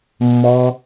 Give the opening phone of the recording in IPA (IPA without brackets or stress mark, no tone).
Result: mː